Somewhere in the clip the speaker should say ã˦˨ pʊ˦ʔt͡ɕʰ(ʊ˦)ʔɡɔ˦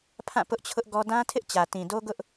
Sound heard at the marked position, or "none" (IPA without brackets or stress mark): ʊ˦